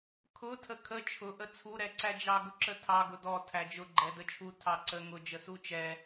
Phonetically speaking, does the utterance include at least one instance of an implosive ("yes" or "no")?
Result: no